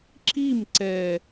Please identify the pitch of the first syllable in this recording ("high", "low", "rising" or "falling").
falling